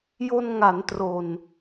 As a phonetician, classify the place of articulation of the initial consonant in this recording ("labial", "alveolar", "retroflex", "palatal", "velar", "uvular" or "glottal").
palatal